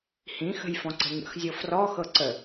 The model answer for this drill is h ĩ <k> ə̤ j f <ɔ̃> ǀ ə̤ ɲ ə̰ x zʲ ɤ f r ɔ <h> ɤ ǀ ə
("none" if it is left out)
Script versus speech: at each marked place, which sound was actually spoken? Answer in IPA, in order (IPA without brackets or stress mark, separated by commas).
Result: x, ɔ̃, x